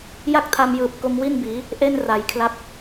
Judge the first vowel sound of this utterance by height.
low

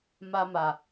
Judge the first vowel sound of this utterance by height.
low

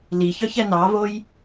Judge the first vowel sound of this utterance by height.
high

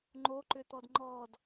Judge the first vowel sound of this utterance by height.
mid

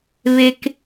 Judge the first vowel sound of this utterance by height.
mid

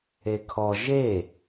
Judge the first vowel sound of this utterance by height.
mid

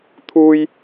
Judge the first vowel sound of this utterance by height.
high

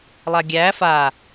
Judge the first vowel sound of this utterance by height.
low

